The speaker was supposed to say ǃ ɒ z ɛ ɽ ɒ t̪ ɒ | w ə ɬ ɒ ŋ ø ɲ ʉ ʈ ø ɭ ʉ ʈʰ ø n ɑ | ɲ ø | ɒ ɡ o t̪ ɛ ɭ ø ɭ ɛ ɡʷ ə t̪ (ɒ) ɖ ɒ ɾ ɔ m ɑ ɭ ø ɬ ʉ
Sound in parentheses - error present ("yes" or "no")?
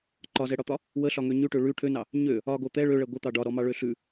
yes